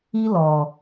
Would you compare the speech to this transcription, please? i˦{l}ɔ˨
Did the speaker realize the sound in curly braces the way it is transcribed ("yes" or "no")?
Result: yes